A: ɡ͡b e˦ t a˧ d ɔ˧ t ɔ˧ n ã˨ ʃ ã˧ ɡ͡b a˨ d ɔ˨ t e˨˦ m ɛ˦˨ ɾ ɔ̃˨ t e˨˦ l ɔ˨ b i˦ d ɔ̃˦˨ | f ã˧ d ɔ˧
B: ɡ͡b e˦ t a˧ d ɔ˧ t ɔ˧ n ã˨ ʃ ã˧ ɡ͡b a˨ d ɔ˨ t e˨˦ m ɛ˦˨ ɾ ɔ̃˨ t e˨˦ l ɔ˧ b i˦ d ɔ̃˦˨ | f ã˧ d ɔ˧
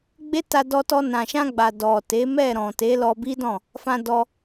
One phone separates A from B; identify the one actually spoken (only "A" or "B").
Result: B